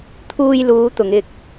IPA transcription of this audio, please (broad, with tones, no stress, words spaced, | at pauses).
t̪ʰuː˧jluː˨˧ t̪ʊ˨˧ŋɪ˧k̚